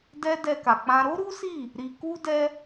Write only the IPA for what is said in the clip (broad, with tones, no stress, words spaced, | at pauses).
dɛ˧ dɛ˧ka˨k͡pã˧ ɾo˦ɾu˦si˦˨ | ɾi˧ku˦dɛ˦